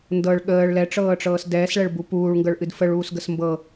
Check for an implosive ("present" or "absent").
present